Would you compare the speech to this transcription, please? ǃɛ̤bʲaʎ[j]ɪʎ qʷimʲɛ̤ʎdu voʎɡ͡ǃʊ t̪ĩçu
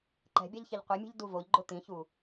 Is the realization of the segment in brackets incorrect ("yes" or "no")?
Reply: yes